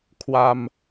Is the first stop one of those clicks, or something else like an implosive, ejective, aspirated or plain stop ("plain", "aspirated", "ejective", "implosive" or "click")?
aspirated